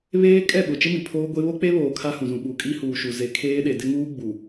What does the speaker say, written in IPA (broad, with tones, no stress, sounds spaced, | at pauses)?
β eː˦ kʼ ɛ˦˨ ɓ ʊ˨ t͡ʃ ɪ˦ m i˨ pʰ oː˦ ɡʷ e˦ β o˦ k͡p e˦ β oː˨ kʰ a˦ h ũ˨ z ũ˨ ɓ u˨ kʼ i˦ h uː˨ ʃ u˨ z e˨ kʰ eː˦ ɗ e˨ d ɪ˦ ŋ uː˦ ɡ͡b u˨